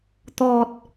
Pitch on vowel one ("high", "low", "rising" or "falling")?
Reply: low